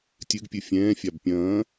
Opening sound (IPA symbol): tʲ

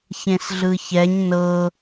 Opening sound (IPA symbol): ç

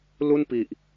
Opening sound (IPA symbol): l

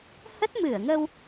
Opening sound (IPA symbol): h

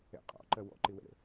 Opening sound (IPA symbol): ɛ̰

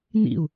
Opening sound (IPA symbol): n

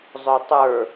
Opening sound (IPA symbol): zˤ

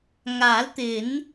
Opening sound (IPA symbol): ŋ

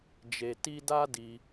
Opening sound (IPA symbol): d͡ʒ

